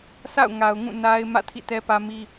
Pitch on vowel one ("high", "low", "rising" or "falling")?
falling